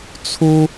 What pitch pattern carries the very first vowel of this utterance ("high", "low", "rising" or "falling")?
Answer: high